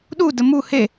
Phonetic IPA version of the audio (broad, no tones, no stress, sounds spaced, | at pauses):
ɗ u d ə m u h e